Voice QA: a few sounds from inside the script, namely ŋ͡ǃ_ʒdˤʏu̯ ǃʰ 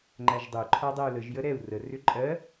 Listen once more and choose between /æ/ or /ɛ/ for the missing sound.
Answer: æ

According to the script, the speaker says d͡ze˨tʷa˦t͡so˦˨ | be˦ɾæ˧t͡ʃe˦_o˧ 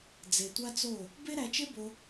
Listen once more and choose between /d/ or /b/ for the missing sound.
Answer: b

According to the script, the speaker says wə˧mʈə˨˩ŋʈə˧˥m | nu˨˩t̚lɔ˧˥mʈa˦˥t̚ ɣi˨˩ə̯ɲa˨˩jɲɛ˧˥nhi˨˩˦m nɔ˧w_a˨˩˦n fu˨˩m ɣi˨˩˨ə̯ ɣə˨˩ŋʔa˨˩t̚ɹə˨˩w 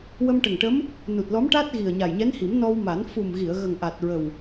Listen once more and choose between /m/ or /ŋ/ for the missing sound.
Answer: m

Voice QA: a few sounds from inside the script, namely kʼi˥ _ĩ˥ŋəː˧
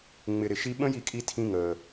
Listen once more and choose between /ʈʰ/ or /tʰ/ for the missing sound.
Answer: tʰ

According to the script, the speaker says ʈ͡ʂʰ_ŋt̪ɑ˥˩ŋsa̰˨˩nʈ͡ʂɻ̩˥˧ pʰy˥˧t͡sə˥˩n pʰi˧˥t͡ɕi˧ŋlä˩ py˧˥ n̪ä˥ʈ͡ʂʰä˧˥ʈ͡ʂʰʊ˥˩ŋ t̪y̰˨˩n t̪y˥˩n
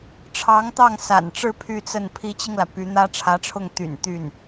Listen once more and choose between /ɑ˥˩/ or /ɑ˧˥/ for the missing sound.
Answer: ɑ˧˥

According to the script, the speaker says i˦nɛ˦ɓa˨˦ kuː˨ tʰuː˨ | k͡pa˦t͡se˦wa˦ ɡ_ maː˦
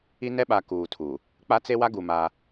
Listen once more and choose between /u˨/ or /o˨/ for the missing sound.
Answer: u˨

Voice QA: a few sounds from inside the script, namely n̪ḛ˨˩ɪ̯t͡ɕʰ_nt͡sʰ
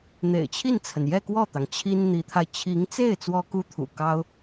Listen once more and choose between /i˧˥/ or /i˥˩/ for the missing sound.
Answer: i˥˩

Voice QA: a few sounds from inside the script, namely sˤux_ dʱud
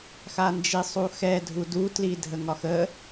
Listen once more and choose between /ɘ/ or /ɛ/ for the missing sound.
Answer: ɛ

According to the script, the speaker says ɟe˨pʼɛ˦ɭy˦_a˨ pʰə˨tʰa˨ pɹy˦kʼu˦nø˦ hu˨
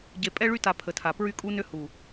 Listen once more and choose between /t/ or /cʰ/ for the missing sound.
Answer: t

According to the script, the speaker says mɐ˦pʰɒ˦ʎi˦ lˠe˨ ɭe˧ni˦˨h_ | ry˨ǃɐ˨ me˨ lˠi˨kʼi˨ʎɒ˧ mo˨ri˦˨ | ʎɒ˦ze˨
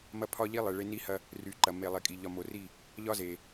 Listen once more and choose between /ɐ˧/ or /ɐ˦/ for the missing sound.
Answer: ɐ˧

